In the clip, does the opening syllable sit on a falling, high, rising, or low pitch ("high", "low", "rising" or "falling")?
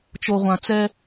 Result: low